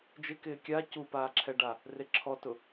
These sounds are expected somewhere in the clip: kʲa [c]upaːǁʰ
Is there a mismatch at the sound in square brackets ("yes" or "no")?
no